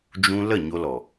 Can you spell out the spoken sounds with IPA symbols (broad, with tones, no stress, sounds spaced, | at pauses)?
d͡ʒ ũ˧ l ə˦˨ ɲ o˧ l ɔ˨